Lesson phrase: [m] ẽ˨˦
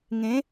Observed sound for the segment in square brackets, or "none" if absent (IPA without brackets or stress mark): ŋ